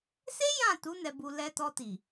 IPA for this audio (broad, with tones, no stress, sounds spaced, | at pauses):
s e˦ j ã˦˨ t u˨˦ n ɛ˧ b u˧ l ɛ˧ t ɔ˧ t i˨